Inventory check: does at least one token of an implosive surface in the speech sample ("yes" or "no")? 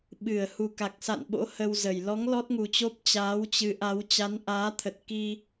yes